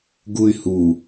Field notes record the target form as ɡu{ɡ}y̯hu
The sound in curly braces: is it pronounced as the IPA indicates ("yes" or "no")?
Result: no